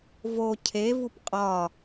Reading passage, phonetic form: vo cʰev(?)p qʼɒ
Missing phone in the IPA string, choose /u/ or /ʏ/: u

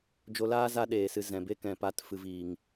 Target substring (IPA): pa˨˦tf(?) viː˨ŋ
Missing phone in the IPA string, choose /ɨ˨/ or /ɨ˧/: ɨ˨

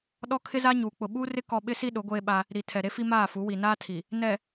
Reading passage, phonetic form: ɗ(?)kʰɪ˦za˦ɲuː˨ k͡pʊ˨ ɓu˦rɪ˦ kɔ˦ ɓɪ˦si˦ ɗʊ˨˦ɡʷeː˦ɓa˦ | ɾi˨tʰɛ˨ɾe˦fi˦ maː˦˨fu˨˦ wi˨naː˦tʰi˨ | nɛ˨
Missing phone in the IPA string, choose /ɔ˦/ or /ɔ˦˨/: ɔ˦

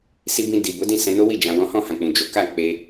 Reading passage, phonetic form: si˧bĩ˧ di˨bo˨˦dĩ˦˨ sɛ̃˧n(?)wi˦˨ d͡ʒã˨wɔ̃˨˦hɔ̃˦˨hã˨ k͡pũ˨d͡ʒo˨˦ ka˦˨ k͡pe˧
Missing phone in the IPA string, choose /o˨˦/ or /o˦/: o˦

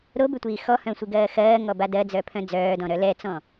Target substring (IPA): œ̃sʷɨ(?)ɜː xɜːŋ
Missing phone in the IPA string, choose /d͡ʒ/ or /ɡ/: ɡ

